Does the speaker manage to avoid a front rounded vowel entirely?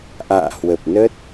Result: yes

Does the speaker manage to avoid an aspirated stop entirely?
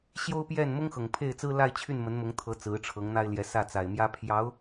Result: no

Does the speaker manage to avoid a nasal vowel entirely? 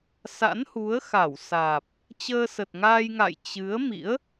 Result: yes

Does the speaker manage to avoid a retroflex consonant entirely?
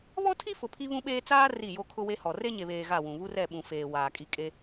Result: yes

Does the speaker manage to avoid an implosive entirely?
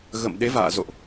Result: no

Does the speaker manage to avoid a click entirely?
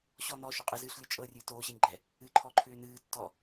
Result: no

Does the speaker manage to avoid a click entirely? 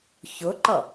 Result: no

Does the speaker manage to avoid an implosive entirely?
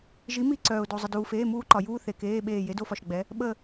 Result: no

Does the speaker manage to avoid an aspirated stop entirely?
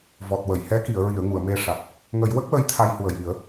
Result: no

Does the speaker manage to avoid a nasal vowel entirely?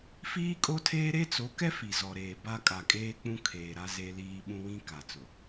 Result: no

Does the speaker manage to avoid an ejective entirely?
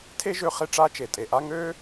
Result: no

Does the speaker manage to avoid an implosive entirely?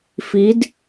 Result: yes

